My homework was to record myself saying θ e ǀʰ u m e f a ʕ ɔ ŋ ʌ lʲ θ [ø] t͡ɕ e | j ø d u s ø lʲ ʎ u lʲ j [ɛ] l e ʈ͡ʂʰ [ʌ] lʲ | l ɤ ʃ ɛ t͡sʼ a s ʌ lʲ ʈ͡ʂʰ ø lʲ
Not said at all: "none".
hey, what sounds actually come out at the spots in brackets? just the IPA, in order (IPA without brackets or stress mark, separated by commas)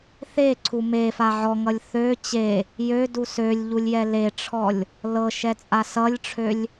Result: ø, ɛ, ɔ